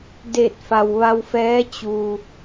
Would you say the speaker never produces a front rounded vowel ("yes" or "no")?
yes